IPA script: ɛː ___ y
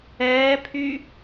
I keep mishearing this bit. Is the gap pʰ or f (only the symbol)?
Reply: pʰ